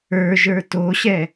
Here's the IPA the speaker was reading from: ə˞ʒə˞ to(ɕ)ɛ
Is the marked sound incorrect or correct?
correct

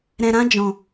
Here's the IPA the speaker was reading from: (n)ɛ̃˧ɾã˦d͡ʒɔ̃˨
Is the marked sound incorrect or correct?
incorrect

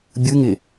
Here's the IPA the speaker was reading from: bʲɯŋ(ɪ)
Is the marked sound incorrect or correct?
correct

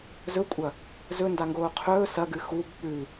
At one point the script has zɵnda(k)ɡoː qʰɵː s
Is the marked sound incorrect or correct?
incorrect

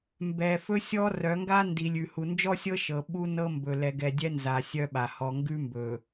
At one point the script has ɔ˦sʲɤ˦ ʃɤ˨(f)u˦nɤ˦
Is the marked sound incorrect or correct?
incorrect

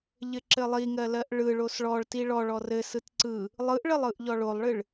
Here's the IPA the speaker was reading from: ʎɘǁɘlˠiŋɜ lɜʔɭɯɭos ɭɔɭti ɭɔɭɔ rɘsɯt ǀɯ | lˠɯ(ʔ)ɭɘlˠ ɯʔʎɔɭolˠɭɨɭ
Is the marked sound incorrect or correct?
correct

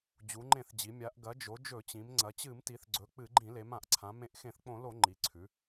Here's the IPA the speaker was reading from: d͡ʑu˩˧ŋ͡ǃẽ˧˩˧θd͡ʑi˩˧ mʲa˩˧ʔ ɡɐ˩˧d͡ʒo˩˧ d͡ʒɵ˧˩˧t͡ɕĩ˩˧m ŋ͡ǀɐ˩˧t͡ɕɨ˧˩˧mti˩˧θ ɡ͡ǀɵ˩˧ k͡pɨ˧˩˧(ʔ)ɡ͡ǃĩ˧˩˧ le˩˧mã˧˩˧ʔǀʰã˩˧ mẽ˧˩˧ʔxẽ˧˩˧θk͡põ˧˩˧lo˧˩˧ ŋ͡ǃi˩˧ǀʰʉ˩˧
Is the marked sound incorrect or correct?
incorrect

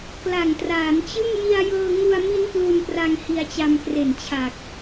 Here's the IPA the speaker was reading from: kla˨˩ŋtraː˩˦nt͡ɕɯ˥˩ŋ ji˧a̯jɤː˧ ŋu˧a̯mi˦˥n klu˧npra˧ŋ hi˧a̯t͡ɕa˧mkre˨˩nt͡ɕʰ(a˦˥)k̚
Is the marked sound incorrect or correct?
incorrect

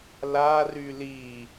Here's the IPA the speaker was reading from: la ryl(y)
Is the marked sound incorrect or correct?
incorrect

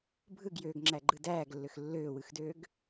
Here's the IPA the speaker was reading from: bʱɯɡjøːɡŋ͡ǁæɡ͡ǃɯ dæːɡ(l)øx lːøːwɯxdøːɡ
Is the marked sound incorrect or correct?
incorrect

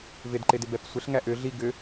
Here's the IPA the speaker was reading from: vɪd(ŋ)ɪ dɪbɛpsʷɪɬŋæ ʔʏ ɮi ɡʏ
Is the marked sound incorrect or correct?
incorrect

